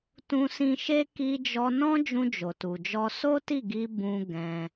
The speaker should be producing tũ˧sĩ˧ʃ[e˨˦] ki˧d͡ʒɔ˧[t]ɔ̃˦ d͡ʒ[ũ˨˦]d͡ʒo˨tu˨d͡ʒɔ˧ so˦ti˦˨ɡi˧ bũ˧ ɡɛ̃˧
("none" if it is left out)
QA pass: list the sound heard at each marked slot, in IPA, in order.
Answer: e˦, n, ũ˧

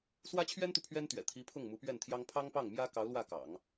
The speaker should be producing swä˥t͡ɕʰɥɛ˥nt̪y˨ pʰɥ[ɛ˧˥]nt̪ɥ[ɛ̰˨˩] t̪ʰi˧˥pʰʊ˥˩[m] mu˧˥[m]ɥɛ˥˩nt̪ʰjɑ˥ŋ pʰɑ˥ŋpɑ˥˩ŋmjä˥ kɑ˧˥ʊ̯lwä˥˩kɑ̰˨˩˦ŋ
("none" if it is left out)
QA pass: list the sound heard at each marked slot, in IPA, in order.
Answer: ɛ˥, ɛ̰˨˩, ŋ, p

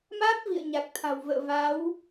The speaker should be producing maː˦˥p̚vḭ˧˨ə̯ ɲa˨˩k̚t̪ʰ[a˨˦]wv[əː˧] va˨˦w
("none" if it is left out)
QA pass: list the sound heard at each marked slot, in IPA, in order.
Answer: a̤˨˩, ə̰ː˧˨

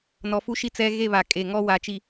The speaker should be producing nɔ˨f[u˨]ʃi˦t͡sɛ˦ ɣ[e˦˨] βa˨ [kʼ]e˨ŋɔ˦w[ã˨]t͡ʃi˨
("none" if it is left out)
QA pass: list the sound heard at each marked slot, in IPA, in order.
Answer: u˦, e˦˨, kʼ, a˨

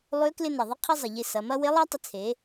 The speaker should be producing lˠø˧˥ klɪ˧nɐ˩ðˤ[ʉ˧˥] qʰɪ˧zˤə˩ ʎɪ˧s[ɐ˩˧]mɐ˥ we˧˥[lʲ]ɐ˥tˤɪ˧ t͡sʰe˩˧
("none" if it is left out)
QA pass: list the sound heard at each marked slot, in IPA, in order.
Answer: ə˧˥, ɐ˩˧, lˠ

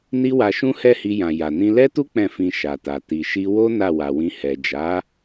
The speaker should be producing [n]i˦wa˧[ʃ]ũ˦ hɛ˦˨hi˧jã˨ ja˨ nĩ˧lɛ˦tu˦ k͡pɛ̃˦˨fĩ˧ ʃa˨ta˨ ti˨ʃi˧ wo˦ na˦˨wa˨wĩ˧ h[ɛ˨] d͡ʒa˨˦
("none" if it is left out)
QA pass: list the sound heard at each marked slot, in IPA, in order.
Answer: n, ʃ, ɛ˨

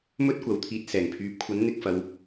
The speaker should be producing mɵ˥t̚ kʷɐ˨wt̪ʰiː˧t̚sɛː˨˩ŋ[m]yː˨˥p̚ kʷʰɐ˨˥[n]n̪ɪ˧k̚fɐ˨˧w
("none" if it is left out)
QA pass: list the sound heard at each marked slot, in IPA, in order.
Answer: pʰ, n

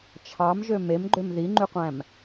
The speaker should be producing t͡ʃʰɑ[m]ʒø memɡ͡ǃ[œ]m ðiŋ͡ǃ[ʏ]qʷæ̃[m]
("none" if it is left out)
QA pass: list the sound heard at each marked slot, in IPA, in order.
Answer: m, ø, y, m

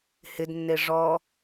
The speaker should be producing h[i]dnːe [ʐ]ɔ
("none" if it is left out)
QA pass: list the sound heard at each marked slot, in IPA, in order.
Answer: ɪ, ʐ

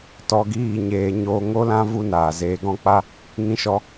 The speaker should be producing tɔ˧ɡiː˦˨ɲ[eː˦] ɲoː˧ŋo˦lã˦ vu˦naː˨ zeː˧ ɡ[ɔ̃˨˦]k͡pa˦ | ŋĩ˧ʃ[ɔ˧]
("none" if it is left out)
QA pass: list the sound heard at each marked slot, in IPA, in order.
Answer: eː˧, ɔ̃˦, ɔ˧

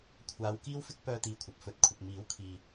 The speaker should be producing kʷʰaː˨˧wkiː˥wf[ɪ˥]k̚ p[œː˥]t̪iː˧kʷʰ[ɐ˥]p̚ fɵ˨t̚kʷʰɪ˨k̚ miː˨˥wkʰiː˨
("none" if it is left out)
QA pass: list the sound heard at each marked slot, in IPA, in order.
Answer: ɪ˥, œː˥, ɐ˨

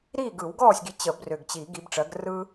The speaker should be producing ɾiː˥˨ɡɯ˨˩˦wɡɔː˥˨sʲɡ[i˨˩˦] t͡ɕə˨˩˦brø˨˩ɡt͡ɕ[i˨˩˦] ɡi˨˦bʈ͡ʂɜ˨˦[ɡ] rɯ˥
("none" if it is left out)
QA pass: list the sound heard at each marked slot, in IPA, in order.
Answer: i˨˦, i˨˩˦, ɡ

